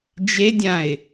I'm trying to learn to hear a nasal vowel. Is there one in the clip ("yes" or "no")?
yes